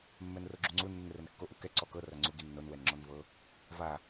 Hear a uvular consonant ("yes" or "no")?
no